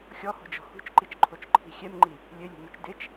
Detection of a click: present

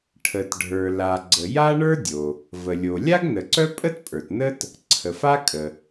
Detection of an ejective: present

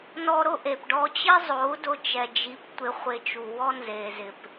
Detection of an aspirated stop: absent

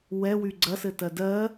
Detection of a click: present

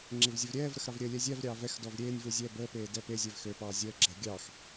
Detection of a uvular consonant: absent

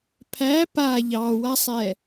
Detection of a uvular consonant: absent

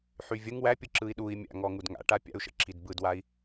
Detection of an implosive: present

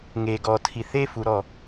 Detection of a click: absent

